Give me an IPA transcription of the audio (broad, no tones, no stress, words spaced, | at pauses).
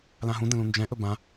lãɦũ də̃lũnd͡ʒɛ̃ ʔɵbã